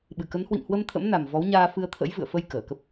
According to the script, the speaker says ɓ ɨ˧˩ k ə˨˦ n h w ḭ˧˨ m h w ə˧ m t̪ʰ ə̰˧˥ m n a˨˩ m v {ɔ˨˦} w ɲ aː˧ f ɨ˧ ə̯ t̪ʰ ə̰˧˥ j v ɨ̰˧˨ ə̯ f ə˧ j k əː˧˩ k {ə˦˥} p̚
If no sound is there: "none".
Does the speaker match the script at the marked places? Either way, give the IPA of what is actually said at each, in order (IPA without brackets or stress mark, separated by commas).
ɔ˨˦, ə˦˥